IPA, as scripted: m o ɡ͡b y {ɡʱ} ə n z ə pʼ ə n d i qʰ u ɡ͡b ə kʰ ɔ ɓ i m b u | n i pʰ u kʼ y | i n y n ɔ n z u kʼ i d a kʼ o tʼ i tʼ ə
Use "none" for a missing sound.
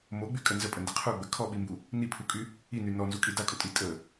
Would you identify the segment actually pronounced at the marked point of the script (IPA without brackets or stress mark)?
kʼ